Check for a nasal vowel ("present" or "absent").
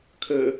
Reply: absent